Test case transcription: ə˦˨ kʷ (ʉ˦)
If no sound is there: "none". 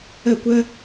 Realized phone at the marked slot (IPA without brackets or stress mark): ə˦